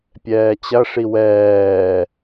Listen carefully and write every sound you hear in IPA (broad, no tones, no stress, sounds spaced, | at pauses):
pʲ ɛː t͡ɕ ɐ ʂ i w ɛː